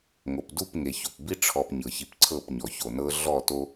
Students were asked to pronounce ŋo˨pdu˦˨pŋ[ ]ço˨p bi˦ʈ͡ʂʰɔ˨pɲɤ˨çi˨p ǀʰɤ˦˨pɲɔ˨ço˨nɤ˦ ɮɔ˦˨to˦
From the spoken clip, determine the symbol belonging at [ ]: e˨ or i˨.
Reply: e˨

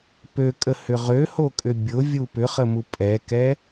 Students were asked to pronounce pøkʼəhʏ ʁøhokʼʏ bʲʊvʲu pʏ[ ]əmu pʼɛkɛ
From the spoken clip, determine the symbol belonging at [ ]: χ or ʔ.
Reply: χ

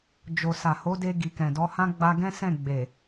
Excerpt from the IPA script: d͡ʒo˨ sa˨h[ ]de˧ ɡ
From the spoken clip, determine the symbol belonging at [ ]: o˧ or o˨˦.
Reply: o˨˦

